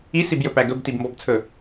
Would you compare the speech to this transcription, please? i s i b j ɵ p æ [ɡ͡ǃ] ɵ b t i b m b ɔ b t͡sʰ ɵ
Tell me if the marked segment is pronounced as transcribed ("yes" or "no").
no